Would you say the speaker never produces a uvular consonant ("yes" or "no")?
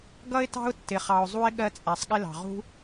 no